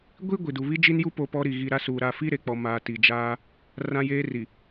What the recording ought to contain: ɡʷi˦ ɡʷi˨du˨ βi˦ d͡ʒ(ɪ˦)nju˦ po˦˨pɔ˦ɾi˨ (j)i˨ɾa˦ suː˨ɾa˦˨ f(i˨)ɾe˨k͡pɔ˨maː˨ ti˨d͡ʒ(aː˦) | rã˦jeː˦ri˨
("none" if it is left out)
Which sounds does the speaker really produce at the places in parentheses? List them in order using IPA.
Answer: i˦, ɣ, i˦, aː˦

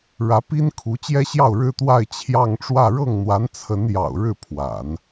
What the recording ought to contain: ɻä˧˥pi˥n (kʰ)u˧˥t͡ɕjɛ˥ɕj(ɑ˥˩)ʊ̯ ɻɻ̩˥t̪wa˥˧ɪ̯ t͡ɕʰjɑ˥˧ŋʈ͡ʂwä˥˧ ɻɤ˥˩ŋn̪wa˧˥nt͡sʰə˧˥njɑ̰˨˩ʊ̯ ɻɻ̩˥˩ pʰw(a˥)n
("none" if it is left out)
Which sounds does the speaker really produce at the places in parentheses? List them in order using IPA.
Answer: kʰ, ɑ˥˩, a̰˨˩˦

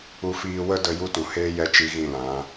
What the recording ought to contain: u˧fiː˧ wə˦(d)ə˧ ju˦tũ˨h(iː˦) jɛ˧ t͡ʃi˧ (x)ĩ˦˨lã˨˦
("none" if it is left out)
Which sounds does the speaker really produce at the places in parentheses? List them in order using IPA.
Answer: d, eː˦, ɣ

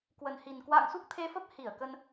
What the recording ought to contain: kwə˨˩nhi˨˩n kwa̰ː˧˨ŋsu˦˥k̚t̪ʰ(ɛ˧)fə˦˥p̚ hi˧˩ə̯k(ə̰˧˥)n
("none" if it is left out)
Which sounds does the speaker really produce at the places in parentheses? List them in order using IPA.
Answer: e˧, ə˧

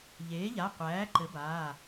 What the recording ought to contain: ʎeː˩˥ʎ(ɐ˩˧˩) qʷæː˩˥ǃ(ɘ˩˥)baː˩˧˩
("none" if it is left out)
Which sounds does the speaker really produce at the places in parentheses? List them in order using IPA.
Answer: a˩˧˩, ɘ˩˥

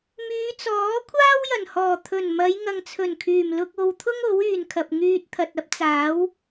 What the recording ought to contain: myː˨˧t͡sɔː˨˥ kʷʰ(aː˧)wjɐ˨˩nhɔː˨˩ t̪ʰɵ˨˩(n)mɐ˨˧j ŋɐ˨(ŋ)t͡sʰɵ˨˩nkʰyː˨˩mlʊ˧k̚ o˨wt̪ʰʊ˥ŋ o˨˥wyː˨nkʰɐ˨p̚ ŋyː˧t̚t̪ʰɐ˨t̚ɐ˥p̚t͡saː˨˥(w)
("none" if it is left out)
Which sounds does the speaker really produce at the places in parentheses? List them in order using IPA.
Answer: aː˥, n, ŋ, w

